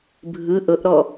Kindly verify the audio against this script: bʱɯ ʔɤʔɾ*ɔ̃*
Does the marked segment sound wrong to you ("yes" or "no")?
yes